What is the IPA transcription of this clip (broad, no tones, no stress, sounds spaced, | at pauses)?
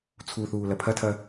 t͡sʰ u θ uː l ɐ pʰ ɐ tʰ ɐ